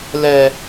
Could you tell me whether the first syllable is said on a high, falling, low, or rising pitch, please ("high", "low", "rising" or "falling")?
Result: high